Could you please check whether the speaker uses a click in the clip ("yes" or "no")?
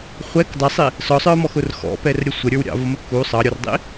no